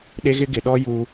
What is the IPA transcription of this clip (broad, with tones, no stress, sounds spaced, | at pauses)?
ɗ e˦ ɣ ɪ˦ ɡ ɪ˨ ɗ ɔ˦ j u˦